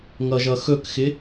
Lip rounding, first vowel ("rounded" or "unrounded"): unrounded